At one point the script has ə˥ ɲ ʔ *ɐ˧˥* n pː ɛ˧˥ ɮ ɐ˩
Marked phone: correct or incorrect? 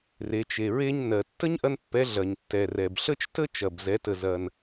incorrect